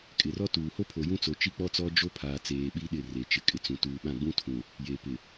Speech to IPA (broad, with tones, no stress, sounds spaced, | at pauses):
kʼ ɪ˨ r ɔ˦ t uː˨ h o˦ pʰ o˨ j ũ˦ t͡s o˨ t͡ʃ i˦ k͡p ɔ˦ t͡s ɔ˦ d͡ʒ o˦ pʰ aː˨ t͡s eː˨ ɓ i˦ ɗ ɪ˦˨ r e˨ t͡ʃ ɪ˨ kʼ ɪ˨ t͡s ũ˨ t uː˨ ɓ ã˦˨ ɡ͡b ũ˦ tʰ ũ˨ | j e˨ p ɪ˨